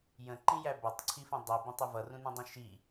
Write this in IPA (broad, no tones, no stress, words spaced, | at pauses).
jə̃ǃĩjæ bʌtˤǀʰifə̃ dˤibĩtˤʊ vʌrũnũdˤũ ʃi